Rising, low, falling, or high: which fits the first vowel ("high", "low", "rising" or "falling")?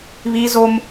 high